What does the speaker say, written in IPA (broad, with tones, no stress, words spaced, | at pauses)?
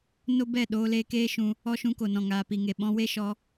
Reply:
no˦bɛ˦˨ ɗoː˧leː˧keː˦ʃũ˧ | ɔ˦ʃũ˧ko˨ nɔ̃˨ŋaː˨pi˨ŋe˨ ɓɔ̃˧we˦ʃɔ˧